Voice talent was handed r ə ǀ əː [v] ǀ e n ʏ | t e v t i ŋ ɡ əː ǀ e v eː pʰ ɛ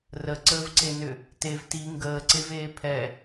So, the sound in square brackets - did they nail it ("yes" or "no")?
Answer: yes